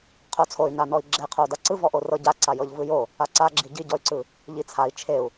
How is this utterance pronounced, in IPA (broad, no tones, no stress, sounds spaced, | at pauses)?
qʰ o t͡sʰ o y̯ n a n ɔ i̯ ɡ͡ǁ e qʰ o u̯ d a ǀ ɯ v ɔ ʔ o r ɤ ɟ a ǀ a j ɤ ʎ v ɯ j o | a ǀ a ɡ͡ǁ i ɟ i ɟ ɔ y̯ ǀ ɯ | ʎ i t͡sʰ a i̯ t͡ʃʰ e u̯